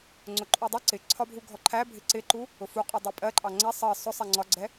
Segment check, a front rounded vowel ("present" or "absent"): absent